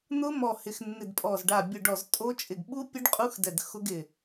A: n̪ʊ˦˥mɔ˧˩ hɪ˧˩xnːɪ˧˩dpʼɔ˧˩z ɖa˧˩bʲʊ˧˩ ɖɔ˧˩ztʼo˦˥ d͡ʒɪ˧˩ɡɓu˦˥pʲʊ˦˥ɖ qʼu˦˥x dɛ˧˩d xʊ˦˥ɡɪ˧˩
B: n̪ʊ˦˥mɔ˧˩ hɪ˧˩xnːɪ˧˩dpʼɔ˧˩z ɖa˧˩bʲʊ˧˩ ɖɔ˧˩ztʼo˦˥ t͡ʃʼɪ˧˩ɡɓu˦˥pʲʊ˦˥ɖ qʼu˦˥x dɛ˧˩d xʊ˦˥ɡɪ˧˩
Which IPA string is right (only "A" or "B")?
B